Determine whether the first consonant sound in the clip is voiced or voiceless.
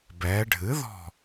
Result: voiced